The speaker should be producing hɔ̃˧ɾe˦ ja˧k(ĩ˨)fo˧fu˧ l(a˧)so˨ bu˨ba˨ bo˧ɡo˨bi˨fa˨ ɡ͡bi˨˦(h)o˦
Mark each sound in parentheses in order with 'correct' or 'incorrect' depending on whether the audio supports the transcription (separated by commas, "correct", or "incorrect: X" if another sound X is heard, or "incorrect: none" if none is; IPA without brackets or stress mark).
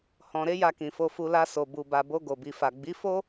correct, correct, incorrect: f